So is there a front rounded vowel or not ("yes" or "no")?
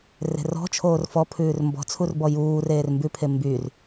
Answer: yes